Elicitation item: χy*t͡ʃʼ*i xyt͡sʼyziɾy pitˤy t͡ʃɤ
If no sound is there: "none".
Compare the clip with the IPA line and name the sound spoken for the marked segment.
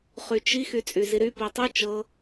t͡ʃ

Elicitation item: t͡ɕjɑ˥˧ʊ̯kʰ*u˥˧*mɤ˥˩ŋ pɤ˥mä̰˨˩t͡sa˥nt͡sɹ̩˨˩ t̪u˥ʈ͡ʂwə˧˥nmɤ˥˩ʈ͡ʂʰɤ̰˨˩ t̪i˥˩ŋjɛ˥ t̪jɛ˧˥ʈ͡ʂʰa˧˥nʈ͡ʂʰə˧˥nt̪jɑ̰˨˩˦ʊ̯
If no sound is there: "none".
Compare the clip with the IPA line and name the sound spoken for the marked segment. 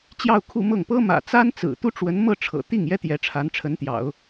u˥˧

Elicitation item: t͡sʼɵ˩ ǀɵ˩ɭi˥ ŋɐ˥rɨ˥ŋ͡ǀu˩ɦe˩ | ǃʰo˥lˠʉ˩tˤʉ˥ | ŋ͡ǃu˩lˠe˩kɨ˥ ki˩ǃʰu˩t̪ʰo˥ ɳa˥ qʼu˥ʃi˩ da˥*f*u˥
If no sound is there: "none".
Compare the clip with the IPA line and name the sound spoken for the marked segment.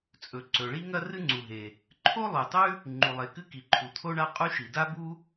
b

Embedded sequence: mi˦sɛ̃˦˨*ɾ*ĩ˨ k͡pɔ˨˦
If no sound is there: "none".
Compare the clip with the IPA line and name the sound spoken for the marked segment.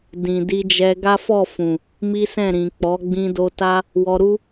ɾ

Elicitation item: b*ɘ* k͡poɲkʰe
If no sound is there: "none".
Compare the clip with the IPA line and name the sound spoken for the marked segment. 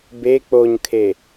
e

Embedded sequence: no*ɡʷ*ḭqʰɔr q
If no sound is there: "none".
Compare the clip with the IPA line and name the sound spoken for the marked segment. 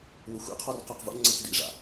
xʷ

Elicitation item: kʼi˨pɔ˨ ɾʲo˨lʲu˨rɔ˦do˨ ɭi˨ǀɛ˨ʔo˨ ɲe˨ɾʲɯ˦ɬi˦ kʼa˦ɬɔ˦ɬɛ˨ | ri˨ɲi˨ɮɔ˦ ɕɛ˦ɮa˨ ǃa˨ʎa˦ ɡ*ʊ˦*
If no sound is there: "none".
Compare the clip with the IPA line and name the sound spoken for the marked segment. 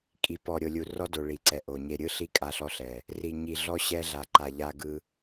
ɯ˦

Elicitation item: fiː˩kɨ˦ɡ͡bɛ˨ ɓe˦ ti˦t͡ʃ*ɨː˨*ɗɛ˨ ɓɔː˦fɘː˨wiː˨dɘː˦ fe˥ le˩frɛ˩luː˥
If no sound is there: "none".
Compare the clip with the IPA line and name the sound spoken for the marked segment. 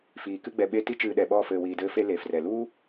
ɨː˨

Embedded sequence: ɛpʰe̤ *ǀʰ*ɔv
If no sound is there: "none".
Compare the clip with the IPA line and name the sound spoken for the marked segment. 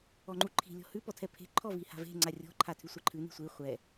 ǃʰ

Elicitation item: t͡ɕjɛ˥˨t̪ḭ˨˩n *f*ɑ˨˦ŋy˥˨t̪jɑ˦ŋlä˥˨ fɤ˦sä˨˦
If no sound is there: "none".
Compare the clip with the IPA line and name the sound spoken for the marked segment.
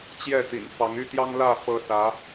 f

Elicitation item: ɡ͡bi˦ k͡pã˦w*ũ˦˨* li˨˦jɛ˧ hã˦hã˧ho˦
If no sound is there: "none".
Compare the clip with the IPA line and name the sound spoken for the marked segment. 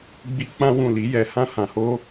ũ˦˨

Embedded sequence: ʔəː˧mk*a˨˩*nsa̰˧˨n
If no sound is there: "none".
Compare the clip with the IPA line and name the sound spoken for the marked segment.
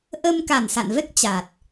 a˨˩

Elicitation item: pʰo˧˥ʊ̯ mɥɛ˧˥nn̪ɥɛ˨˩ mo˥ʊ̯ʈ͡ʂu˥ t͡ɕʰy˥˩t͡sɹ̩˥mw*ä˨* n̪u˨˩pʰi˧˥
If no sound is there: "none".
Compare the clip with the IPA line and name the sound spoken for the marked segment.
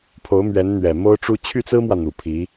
ä˨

